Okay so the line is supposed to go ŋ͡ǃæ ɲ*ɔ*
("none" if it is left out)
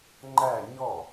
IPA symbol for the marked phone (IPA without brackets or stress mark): ɔ